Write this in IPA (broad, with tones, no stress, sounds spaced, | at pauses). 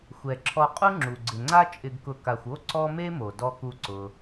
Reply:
xʷ ɛ˩ ǁʰ ɔ˨ qʼ u˦ ŋ͡ǁ u˩ ɡ͡ǀ ɪ˩ ŋ͡ǀ a˦ t͡ʃʼ ɪ˨ ɡ k ʊ˨ k a˨ xʷ o˥ ǀ ɔ˦ m e˥ m o˩ d ɔ˨ k u˨ ǀ ʊ˩